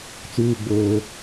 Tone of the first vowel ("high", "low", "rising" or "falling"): low